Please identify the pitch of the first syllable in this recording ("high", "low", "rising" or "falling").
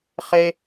high